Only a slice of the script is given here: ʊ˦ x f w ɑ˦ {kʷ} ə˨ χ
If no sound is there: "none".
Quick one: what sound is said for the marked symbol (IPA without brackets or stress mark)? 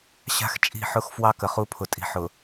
k